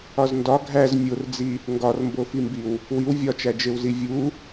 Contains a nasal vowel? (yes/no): no